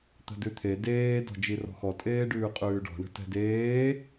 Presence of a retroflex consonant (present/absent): present